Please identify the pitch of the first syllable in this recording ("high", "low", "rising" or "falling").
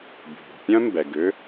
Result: low